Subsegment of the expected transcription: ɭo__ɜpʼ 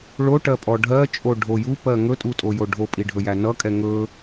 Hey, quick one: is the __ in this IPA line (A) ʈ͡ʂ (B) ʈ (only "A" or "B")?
B